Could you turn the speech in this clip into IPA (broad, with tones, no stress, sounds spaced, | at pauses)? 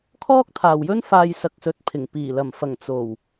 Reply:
kʰ ɔː˥ k̚ t̪ʰ aː˨ w j ɵ˥ n f aː˧ j s ɐ˧ k̚ s ɵ˨˥ t̚ pʰ ɪ˨˩ ŋ p iː˨˩ l ɐ˨˩ m f ɐ˨˩ ŋ t͡s o˨˩ w